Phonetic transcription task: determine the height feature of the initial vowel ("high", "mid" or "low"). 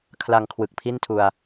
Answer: low